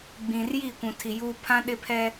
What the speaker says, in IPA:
ɡ͡b ĩ˨ r j i˦˨ kʷ ũ˨ tʰ i˨ j uː˦ pʰ ã˦ ɗ ɪ˦ pʰ ɛ˦

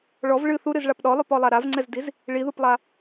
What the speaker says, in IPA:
ɭ ɔ v ɭ ɨ θ u ɾ ɨ z ɭ a p ɗ ɔ lˠ o p ɔ lˠ a ɾ a v ŋ͡ǀ ɛ z d i z | ɭ i ð u p lˠ a

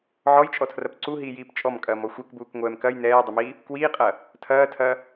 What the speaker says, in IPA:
ʕ ɔ j t͡ʃʼ ɔ tʰ r ɐ p ǀ u ɦ iː j iː p t͡ʃʼ ɔ m kʼ ɐː m ɔ xʷ ɛ k b uː k ŋʷ ɛː m k ɐ j n ɛː dˤ ə m i | k w iː qʼ ɐ | tʰ ɐː tʰ ɐ

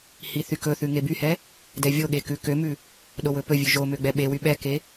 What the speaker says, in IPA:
h i θ y k ɵ θ ʉ ŋ e b y h ɛ | d ɛ vʲ o ɠ e k ʉ k ø m ʉ | ɗ o w ɵ p ɵ vʲ ʉ ʒ o m ø ɡ͡b ɛ ɓ e w y ɓ ɛ k e

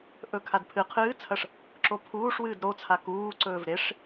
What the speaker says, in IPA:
ʔ ɵ kʰ a d pʰ ɨ qʰ ɨː t͡sʰ ɐ ʂ | ǁ o pʰ uː ʂ w ɨː d ɾ o t͡sʰ a k uː ǀ ɵː v ɾ e ʂ

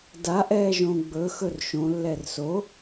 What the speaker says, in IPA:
d a ʔ ɛː ʒ õ ɡ͡b ɵ x ɵ r ʃ õ lː ɛ r s o

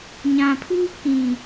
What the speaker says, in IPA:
ɲ ã˨ pʰ uː˦ k ĩ˨

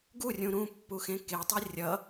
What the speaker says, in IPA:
ɡ u rʲ ũ ɾ ũ pː u x ẽ k e tˤ i rʲ ʌ

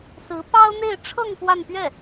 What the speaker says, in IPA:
s ɹ̩˧˥ p ɑ˥ ʊ̯ n̪ e˥˧ ɪ̯ ʈ͡ʂʰ ɤ˥˧ ŋ p w a˥˧ n p ɥ ɛ˥˩

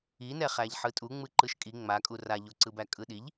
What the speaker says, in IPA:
i n ɛ χ æ ʎ ħ ɯ tʼ u ŋ͡m ɯ ǃ ɯ ʃ kʼ i ŋ͡m a kʼ u r a ʎ o ǀ ɯ b æ kʼ ɯ ɗ i ʎ

